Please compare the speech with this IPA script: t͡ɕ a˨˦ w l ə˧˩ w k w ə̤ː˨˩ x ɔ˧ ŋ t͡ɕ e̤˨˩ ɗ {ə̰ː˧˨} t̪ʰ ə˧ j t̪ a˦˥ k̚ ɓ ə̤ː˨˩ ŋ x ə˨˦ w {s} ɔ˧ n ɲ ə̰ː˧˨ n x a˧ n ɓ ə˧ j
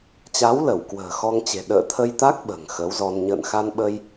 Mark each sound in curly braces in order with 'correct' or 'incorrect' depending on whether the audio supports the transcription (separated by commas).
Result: correct, incorrect